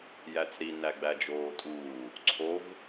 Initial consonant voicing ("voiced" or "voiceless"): voiced